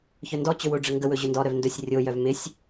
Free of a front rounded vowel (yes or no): no